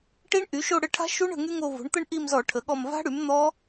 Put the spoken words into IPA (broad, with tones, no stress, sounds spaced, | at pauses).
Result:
ʈ i˦˥ ɳ ʔ y˩˥ ʃ o˦˨ ɽ ə˦˨ ʈʰ a̤˦˥ ʃ u˦˥ ɳ ə̤˦˨ ŋ y˦˥ ŋ o˦˨ v o̤˩˥ ɳ t̪ ə˦˥ ɳ ʔ i˦˨ m z ɔ˧˩˧ ʈʰ ə˩˥ ɠ ɔ˦˨ m v a̤˦˥ ɽ y˩˥ m n̪ ɔ˦˥